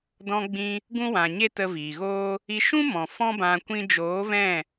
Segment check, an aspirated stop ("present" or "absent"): absent